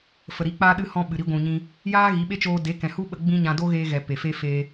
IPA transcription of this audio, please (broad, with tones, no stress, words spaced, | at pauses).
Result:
fə˨ɾi˨˦k͡paː˦ɗɨ˦ hɔ̃˦ɓɨ˨ɾi˦ ɡʷũ˨ɲĩ˧ | jaː˦ɣi˨˦ɓe˦t͡ʃoː˧ de˨˦kɛ̃˨hu˦ɓə˧ ɡ͡bĩ˦ɲã˧ do˦ɣeː˧ɣɛ˨ pe˨fe˦ feː˦